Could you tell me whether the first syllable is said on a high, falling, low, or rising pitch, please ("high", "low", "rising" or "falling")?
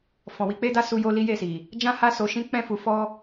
low